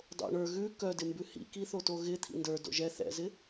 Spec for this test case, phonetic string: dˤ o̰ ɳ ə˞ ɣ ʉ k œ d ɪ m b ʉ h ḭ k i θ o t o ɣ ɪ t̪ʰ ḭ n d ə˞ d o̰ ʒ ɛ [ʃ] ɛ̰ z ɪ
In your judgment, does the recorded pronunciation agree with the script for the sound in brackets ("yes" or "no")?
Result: no